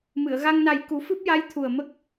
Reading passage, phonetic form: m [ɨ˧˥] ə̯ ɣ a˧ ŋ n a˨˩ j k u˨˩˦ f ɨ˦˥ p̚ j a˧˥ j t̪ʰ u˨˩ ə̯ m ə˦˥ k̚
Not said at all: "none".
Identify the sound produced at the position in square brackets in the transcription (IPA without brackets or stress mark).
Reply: ɨ˨˩˨